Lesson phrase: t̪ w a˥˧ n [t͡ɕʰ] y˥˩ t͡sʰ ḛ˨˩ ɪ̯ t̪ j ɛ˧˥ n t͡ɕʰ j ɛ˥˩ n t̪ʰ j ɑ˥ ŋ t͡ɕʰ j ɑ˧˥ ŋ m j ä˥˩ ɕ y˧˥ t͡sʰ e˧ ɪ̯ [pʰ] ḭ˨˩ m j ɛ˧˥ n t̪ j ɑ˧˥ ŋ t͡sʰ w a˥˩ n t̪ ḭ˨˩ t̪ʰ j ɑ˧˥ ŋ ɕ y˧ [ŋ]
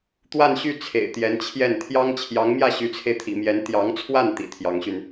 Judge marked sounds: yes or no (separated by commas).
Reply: no, no, no